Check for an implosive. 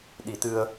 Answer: present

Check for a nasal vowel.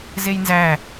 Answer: absent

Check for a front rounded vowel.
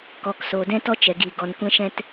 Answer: absent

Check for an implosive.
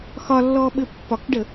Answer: present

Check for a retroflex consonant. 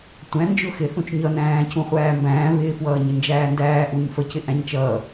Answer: absent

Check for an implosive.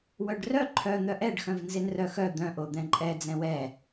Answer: absent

